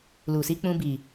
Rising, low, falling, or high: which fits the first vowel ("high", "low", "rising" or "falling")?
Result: low